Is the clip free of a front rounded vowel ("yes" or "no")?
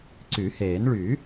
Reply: no